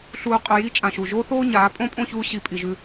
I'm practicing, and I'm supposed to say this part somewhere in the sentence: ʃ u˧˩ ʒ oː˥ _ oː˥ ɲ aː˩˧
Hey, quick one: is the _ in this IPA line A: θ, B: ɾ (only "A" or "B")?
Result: A